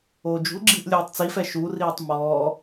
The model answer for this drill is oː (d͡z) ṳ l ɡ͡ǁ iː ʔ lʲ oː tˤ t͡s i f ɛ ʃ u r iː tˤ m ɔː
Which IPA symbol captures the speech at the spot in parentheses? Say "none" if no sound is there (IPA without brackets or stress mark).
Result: d͡ʒ